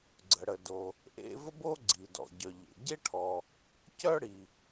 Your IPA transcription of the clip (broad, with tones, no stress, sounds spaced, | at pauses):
ɡ͡ǀ ə˩ ɽ ə˩ d o˩ | ʔ ḛ˥ v ə˥ b o˥ ɡ͡ǀ i˩ d ɔ̰˩ ɟ œ˩ ʎ ḛ˩ ɟ e˥ ʈʰ ɔ˩ | c œ˥ ɽ i˩